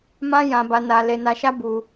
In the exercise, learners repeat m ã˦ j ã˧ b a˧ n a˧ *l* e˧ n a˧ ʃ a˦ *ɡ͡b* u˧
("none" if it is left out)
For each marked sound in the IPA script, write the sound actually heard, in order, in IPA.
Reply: l, b

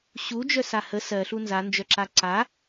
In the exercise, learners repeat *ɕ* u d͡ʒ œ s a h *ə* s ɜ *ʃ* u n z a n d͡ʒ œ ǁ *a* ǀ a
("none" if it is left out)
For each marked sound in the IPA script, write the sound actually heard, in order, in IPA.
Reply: ɕ, ə, ɬ, a

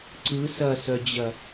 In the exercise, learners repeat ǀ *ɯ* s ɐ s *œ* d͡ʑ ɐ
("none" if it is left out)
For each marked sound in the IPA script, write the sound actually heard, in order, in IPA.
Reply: ɯ, œ

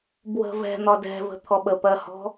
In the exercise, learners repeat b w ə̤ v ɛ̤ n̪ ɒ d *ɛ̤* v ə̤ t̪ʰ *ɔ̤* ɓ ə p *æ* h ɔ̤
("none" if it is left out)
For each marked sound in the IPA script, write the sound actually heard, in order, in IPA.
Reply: ɛ̤, ɔ, ɜ

